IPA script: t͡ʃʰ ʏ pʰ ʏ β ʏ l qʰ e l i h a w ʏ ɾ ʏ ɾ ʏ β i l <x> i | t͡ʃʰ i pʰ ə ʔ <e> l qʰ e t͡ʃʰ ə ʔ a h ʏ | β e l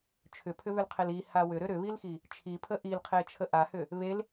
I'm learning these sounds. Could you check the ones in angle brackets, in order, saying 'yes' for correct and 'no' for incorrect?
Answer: yes, no

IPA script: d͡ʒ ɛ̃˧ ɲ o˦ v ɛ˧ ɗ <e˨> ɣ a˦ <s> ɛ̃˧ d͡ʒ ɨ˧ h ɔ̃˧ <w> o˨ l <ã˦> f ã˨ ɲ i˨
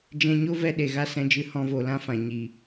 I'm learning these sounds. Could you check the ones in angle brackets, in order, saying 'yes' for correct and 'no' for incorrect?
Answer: yes, yes, no, yes

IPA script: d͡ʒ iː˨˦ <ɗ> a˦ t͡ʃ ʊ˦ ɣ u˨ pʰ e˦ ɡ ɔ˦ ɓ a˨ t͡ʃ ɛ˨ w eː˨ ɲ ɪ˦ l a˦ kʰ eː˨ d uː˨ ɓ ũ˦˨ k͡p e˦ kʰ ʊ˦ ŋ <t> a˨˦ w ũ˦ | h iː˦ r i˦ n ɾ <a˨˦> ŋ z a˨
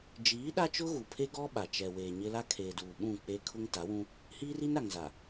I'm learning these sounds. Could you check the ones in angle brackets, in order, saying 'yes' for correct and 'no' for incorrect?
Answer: yes, yes, no

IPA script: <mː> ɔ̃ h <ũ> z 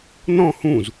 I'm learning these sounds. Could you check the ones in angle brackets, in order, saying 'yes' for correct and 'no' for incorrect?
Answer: no, yes

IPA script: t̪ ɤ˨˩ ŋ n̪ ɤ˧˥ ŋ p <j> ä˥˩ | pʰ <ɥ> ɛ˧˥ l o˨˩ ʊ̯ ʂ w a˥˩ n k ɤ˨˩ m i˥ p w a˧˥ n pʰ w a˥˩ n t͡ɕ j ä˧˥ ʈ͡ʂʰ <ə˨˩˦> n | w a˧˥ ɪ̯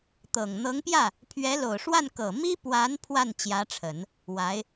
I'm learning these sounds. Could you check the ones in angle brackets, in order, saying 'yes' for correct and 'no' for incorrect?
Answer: yes, yes, yes

